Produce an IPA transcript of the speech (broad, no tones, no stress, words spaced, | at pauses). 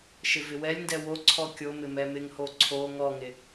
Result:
ʃɪvɪwɛlʲndɛ woǀʰɔ kʲomɪ mɛmɪŋho ǀʰo ŋɔŋɪ